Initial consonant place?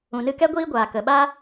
alveolar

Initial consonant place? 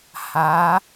glottal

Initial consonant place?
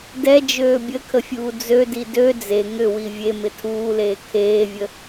alveolar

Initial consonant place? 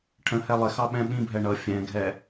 retroflex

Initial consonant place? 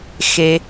velar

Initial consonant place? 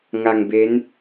velar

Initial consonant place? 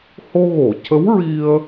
glottal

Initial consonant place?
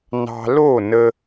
alveolar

